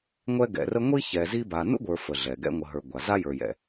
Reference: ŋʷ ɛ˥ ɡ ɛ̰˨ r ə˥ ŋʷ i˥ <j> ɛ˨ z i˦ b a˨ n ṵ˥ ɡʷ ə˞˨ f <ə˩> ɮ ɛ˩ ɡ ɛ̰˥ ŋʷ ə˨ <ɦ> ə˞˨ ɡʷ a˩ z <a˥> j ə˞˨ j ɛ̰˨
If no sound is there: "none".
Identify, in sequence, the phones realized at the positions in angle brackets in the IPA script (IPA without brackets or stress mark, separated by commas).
ç, ə˩, ɦ, a˥